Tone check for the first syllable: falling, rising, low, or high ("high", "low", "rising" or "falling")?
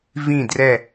falling